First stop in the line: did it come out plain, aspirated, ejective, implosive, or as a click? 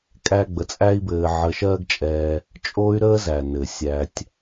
ejective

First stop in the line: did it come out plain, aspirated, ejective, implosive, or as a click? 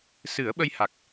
implosive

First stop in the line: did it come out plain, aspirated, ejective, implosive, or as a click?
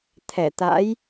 aspirated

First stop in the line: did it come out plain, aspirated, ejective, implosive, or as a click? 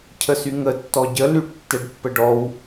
aspirated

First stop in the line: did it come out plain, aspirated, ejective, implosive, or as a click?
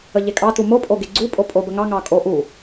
ejective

